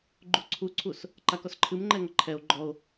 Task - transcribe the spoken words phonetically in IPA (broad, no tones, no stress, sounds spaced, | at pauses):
ɡ͡ǃ u ǀʰ u ǀʰ u s | ǃ a k ɔ s ǃʰ ɨ m ŋ͡ǃ ɛ ŋ ʌ ǃʰ ɛ o̯ ɡ͡ǃ ɔ o̯